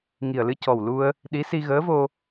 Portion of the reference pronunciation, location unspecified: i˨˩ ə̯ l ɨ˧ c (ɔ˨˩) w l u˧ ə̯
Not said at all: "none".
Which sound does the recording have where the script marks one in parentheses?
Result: ɔ˨˩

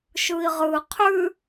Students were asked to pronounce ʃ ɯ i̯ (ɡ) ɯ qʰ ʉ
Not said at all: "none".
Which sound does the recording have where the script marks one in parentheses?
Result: ʁ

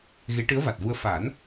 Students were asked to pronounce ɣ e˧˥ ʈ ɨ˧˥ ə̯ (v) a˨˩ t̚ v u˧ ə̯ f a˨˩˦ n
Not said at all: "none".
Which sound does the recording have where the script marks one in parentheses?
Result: v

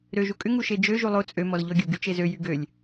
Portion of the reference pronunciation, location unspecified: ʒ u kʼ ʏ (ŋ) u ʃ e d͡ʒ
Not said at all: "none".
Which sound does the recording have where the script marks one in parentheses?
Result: ŋ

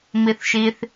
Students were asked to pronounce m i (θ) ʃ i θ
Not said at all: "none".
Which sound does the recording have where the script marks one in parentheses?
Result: θ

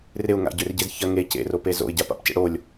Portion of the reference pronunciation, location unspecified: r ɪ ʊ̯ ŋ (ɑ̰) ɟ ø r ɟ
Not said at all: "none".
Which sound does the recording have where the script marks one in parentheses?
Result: a̰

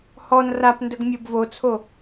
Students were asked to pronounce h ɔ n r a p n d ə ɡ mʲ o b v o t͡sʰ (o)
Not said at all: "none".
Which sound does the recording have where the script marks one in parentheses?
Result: o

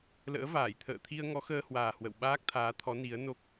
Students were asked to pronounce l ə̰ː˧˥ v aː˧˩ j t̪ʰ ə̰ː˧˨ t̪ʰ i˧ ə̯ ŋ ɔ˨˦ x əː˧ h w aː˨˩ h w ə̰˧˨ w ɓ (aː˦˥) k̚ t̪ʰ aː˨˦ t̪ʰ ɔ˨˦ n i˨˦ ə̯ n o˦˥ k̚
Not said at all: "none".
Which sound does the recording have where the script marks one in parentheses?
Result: aː˦˥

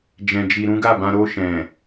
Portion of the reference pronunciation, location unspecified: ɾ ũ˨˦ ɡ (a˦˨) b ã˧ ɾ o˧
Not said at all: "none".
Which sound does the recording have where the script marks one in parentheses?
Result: a˦˨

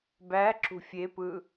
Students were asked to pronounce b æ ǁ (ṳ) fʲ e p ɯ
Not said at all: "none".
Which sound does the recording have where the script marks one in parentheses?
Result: ṳ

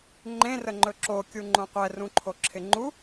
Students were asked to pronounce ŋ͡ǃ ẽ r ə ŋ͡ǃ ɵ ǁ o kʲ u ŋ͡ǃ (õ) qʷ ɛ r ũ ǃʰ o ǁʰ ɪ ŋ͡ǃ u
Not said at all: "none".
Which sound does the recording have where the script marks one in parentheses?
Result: õ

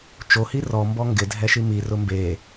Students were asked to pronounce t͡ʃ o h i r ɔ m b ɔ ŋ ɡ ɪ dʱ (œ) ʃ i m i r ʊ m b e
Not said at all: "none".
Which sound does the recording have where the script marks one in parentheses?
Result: ɛ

